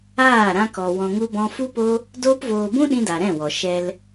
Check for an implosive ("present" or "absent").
present